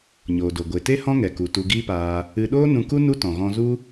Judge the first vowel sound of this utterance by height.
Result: mid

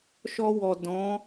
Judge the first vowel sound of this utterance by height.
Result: mid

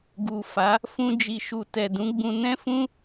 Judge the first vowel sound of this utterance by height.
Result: high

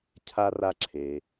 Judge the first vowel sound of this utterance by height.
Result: low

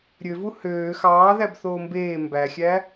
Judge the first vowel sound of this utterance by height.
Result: mid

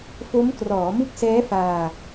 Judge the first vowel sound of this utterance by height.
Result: mid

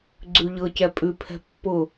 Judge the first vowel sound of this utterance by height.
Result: high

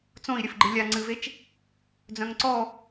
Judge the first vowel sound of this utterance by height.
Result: mid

